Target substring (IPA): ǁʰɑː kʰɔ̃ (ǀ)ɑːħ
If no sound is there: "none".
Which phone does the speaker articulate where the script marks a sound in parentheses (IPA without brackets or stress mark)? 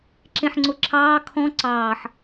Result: ǀ